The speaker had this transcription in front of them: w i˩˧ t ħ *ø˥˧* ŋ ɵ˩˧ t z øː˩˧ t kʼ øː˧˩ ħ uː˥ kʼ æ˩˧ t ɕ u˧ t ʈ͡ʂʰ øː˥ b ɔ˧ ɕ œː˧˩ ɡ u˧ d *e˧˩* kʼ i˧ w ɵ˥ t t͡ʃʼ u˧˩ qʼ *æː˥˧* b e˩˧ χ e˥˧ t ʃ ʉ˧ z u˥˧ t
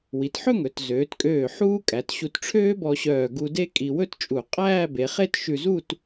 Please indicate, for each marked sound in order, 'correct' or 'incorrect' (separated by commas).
incorrect, incorrect, correct